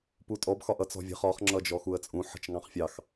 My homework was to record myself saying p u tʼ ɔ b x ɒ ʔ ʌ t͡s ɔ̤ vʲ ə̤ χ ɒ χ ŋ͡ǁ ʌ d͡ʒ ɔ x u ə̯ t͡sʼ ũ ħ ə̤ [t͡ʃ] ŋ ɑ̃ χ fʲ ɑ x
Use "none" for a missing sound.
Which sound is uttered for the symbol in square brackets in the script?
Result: t͡ʃ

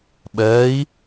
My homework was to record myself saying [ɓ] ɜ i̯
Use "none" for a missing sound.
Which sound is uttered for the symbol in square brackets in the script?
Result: ɓ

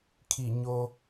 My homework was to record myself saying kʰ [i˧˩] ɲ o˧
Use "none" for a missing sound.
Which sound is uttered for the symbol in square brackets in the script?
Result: i˧˩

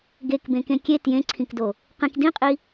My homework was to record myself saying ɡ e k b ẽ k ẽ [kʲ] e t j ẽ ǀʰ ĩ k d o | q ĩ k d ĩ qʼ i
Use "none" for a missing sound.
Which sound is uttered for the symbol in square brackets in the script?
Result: kʲ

